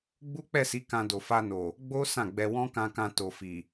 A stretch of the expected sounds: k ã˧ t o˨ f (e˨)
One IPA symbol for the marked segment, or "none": i˨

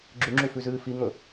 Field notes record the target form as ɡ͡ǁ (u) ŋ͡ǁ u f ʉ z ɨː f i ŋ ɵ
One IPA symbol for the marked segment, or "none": ʉ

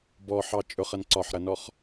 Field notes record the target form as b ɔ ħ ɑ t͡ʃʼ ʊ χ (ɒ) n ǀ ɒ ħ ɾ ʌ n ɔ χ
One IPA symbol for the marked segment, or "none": ʌ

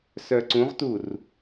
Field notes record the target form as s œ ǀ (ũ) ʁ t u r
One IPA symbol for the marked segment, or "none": ũ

